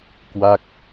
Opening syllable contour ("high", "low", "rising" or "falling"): falling